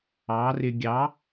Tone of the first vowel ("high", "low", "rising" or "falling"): rising